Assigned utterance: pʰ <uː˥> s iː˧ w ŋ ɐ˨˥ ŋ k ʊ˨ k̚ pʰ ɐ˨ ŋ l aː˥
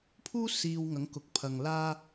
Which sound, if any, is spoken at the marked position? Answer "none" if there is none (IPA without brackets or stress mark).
uː˥